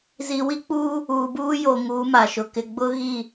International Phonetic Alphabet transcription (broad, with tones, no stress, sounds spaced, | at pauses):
z i˨ w i˦ k͡p uː˦ | uː˨ b uː˦ j o˨ ŋ uː˨˦ m a˨ ʃ ʊ˨ k ɪ˨ ɡ͡b ʊ˦ ɣ i˦˨